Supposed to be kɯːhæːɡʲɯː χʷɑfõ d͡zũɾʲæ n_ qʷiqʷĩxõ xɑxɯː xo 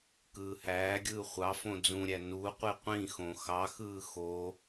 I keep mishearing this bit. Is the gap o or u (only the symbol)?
u